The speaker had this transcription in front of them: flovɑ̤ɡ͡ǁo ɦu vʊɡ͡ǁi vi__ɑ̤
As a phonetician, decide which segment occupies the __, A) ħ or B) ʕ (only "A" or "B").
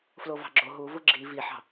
A